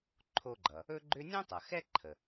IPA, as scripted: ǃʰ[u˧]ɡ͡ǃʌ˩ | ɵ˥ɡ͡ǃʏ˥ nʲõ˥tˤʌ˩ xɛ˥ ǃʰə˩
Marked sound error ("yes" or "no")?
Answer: yes